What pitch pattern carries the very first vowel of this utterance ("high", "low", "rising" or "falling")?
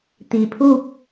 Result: low